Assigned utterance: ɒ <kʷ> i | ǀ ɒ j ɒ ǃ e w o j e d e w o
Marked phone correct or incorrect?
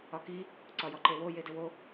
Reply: incorrect